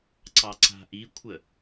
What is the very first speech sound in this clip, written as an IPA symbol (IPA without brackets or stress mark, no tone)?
ǀ